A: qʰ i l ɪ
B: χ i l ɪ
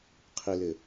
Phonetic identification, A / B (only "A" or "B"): A